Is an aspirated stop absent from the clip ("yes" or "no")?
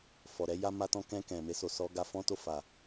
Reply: yes